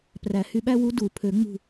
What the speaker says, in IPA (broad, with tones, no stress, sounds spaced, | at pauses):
p r æ˨˩˦ h y˧ ɓ æ˥ w u˧˥ d u˨˩˦ pʰ ø˨˩˦ ŋ͡m ṳ˧˩